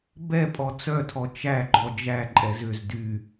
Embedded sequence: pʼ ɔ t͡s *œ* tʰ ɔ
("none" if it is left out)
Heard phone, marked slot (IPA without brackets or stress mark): œ